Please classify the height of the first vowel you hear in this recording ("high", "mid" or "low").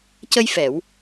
mid